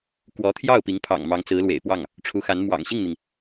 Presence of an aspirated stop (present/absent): present